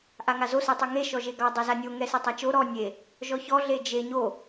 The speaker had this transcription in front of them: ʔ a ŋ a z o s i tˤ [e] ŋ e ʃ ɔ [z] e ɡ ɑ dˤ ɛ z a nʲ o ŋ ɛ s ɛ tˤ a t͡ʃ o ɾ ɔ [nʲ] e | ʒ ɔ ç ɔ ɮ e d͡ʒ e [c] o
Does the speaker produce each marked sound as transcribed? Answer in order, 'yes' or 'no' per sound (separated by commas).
yes, no, yes, no